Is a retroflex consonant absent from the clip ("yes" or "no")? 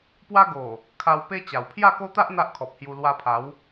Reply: yes